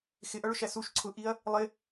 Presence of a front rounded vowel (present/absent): absent